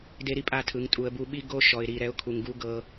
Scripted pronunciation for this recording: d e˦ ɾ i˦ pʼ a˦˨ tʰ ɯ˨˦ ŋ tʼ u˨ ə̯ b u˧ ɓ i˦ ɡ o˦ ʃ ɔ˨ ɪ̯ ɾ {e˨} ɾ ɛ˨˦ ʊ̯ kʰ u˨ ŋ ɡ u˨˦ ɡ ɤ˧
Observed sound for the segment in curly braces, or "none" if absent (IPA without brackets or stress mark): i˨